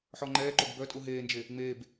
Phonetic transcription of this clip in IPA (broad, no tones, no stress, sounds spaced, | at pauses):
ħ ɔ ŋ͡ǃ ɛː ǃ o ɡ b œ tʼ u ɦ eː n d͡ʒ e | ŋ͡m eː b